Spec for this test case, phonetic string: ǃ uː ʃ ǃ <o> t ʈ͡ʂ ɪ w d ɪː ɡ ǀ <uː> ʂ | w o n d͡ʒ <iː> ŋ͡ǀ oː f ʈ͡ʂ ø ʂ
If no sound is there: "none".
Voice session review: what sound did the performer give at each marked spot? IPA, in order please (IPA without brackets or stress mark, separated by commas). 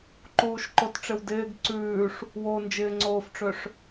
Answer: o, ʉː, ɪː